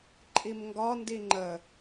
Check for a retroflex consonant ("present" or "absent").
absent